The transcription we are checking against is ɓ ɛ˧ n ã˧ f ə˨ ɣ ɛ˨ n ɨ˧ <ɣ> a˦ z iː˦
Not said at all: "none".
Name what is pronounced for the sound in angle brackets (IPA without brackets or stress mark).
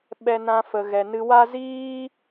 w